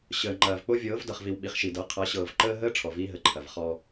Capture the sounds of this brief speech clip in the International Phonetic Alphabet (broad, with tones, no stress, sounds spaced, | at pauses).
ɕ əː˨ ŋ͡ǃ ɐː˨ v k͡p o˦ vʲ ɤː˨˦ v d ʌ˨ χ v i˨ w ɓ i˨ χ ʃ i˨ d ɤ˨˦ qʰ ʌ˨˦ ɕ ɤː˨ v ǃ əː˦ ɦ əː˦ ʈ͡ʂʰ ɔ˨ v iː˦ ɦ ə˨ ǃʰ ɐ˨ v χ ɔ˦